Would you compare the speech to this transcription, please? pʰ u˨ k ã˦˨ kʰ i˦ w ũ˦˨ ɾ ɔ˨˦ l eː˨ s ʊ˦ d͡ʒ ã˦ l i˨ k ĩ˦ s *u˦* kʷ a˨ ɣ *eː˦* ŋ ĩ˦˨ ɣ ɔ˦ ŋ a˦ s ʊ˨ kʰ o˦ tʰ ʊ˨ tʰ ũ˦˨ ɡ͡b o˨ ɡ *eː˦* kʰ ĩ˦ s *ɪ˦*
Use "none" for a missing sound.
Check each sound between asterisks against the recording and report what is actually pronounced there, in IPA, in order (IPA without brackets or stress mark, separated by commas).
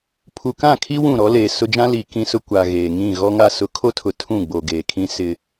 ʊ˦, eː˨, eː˨, ɪ˦